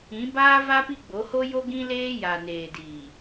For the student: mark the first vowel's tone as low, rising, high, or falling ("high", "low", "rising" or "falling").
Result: rising